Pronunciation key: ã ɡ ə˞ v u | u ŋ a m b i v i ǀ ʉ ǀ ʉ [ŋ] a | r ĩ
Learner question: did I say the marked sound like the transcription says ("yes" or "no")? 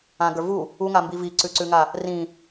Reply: yes